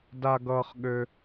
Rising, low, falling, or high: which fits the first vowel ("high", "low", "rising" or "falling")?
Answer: high